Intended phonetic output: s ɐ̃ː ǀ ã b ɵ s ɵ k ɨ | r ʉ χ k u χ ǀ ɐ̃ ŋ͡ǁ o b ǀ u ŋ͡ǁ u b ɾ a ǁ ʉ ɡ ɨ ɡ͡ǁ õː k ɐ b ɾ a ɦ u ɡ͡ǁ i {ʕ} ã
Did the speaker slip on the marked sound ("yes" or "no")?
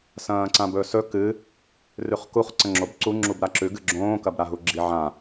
no